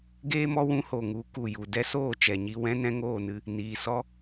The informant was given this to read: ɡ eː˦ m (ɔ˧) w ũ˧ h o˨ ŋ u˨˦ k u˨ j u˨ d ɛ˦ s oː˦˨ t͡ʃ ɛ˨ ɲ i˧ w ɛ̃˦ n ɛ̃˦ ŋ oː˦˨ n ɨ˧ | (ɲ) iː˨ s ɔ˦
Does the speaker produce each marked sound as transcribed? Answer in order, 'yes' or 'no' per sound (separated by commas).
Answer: yes, no